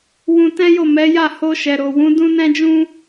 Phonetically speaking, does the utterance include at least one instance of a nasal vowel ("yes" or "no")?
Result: yes